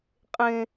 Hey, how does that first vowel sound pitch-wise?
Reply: high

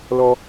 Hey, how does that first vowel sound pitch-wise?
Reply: low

